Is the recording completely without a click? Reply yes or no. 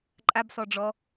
no